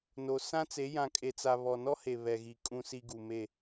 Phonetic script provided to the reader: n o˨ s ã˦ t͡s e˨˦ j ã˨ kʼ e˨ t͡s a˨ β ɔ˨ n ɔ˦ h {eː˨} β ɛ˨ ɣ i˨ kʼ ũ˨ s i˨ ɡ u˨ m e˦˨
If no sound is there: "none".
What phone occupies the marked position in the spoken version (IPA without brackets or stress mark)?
e˨